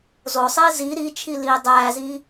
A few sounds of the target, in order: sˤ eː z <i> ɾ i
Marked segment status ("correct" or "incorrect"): correct